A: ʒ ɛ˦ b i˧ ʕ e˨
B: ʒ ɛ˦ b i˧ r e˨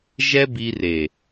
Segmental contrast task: B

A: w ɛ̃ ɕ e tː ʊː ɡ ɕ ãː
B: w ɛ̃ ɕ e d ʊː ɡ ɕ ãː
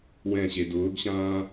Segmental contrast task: B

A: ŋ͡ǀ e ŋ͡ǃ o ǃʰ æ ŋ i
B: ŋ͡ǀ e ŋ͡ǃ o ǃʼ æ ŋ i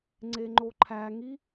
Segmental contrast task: A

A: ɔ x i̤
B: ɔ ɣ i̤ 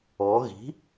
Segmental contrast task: B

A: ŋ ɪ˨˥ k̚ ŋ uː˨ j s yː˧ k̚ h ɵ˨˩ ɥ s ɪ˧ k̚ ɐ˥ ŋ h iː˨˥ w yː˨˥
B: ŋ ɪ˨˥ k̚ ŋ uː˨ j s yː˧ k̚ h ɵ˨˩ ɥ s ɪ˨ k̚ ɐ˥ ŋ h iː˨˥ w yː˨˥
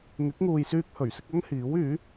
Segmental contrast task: A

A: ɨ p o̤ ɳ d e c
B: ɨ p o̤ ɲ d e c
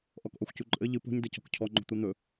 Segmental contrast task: B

